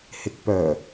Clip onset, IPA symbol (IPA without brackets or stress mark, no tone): h